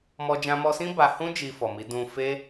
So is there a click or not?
no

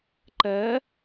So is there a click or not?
yes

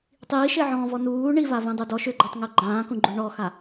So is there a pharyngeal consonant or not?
yes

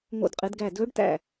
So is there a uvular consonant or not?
yes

